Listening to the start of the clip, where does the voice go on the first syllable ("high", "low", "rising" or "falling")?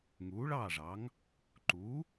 rising